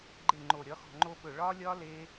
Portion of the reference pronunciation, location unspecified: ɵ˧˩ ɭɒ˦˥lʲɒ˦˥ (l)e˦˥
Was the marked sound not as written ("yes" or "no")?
no